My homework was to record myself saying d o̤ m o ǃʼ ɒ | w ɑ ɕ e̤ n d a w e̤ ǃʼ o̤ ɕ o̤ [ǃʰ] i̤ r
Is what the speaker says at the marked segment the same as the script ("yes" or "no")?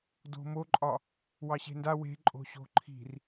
yes